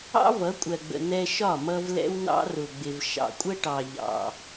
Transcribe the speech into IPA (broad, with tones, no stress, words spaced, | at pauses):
ɑ̰˦vʌ˨˦kʷʼɜ˨ɡ͡bə̰˨ nɛ˧ʃɒ˦˨mʌ˧v lɛ̰˦wnɑ̰˦rʊ˨ɡ͡bɪ˨v ʃɑ̰˨kʷʼə˦ʈɑ˨ ʎɑ̰˨